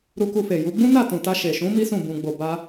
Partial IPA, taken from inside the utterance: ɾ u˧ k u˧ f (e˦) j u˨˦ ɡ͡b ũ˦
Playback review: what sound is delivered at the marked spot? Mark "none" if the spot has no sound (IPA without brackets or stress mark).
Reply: e˨